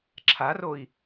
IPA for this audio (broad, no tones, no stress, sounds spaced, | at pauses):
ǁʰ a r o i̯